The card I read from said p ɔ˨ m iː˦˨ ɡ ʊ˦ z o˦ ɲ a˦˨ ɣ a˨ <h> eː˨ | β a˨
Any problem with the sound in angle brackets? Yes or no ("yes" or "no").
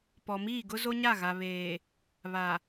yes